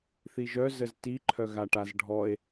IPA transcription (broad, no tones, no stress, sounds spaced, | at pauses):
θ i ʒ œ z ə z t i ǃʰ œ ɣ a ʈ a z ɖʱ ɔ e̯